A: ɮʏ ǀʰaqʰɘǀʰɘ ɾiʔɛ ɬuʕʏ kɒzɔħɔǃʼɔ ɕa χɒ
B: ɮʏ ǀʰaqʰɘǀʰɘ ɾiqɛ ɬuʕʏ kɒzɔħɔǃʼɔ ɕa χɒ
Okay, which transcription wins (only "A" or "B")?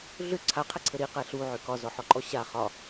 B